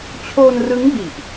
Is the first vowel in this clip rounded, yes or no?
yes